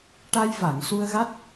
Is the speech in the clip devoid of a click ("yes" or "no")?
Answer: yes